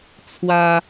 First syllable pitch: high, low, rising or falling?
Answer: high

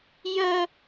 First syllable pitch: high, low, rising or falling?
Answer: high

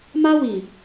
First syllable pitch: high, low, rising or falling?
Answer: high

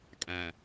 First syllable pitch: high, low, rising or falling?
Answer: low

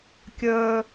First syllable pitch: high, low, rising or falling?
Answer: high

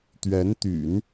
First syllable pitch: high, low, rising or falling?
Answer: rising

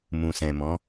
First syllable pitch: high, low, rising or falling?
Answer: low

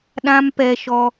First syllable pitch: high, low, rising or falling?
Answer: high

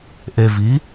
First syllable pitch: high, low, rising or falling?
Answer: low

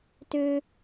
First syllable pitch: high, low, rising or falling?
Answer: low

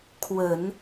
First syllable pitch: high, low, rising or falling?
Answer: low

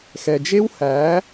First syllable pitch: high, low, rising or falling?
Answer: low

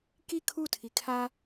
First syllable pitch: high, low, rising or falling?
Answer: falling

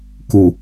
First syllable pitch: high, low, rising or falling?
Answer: low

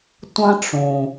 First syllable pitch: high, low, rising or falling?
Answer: high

